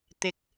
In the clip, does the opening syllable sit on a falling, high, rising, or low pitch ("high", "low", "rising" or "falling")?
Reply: rising